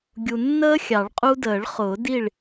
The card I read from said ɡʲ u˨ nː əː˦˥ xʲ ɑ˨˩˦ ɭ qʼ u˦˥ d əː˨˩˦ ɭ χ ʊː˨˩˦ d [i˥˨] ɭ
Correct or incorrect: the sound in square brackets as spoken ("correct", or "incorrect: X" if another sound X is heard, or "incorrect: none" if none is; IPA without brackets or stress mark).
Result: correct